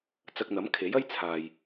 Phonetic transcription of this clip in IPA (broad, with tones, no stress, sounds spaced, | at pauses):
t͡s ɐ˧ k̚ n̪ ɐ˨˥ m kʰ e˨˥ j ɐ˥ j t͡sʰ aː˨ j